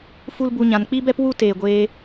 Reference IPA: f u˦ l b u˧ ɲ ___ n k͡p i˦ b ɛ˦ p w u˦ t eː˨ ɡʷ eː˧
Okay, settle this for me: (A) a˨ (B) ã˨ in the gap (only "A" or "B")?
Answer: B